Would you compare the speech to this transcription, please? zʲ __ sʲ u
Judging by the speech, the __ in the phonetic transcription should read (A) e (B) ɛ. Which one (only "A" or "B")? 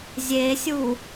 A